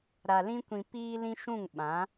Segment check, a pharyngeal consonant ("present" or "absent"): absent